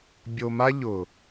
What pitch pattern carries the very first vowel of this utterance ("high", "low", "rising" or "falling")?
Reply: low